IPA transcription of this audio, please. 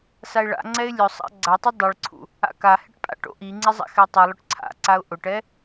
s a ɪ̯ ɭ a̰ ŋ͡ǀ ɛ ɪ̯ lʲ ʊ sˤ a̰ ɡ͡ǀ a tˤ u dˤ i ɭ ǀʰ ṵ | a̰ k a h ɪ ʈ pʼ a̰ ʈ o̰ ʔ i ŋ͡ǀ ɪ zˤ a̰ x ɛ tˤ i lˠ ʊ ʈ ǀʰ a̰ ǀ a ʊ̯ ʔ ʊ ʈ ɛ

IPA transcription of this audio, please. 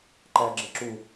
ǃ æ ɡ͡ǁ ɪ ǁ u

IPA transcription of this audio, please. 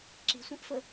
ǁ i̤ sʷ ẽ ʔ f ə

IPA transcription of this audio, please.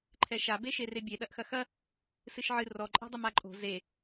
ǃʰ ɛ ʃ a b e ʃ e r e bʲ e ɗ ɐ ʔ x ɐ x ɐ | s ɨ ʃ ʕ ɨ r ɔ ǃʼ ɛ̤ dˤ ɨ m a ǃʼ o̤ z e

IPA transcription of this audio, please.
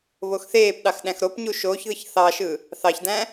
β o x θ eː p ɗ ɑ x ɗ æ̃ x ɾ o p ɲ u ʃ oː ç ð ɯ ç θ ɑ ʃ ɯ | θ ɑ ç d æ̃

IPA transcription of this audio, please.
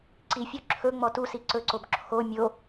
ǀ i fʲ o ǁʰ ɵ ŋ͡m ɔ t u s i ǀ ɵ ǀ o b ǁʰ o mʲ o

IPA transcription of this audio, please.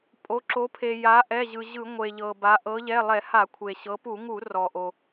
pʼ o˩˧ ǁ o˩˧ pʰ e˩ j a˩˧ ʔ ɛ˩˧˩ ʑ ɯ˩ ʑ ɯ˧˩˧ ŋʷ e˩ ʎ ɤ˩ b a˩˧ ʔ ɤ˩˧ ʎ ɛ˩˧˩ lˠ ɛ˧˩˧ h a˧˩˧ kʷʰ e˩ ɕ ɤ˩˧ p u˧˩˧ ŋ u˧˩˧ r ɔ˩ ʔ o˩

